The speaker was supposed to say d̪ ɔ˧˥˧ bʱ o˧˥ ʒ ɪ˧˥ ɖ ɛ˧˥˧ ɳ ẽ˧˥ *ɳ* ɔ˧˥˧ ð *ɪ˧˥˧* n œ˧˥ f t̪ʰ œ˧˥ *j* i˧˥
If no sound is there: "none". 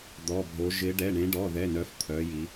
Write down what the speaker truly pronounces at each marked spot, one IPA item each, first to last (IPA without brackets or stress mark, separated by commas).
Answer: ɖ, ɛ˧˥˧, j